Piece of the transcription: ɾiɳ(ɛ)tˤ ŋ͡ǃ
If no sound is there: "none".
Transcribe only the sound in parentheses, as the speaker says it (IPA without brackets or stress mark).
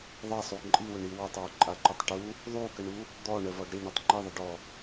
ʏ